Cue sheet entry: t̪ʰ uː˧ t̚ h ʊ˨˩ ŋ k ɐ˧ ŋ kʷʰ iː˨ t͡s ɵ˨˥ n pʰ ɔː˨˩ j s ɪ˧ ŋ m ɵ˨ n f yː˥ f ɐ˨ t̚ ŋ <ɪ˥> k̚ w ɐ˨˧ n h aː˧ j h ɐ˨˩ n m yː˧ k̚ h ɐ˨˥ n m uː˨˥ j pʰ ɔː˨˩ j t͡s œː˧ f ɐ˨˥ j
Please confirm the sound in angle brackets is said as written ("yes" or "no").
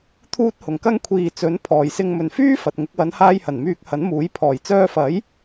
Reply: no